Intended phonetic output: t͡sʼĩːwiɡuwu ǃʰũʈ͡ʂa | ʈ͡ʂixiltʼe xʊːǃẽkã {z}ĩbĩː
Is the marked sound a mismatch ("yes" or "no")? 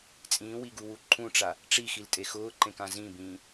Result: no